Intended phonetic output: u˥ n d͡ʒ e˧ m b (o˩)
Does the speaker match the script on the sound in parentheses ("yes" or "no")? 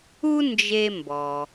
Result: no